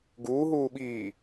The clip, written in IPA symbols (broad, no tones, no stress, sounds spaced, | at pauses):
ɡ uː ɦ uː ɓ iː